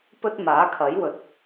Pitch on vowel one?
high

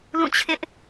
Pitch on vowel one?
falling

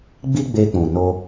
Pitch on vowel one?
high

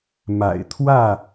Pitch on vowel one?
low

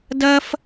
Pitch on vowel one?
high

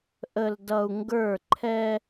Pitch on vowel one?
low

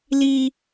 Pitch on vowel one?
high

